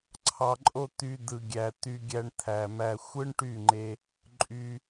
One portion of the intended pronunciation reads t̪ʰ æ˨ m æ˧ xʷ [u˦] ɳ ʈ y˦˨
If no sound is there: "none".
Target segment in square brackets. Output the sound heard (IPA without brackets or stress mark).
ɯ˦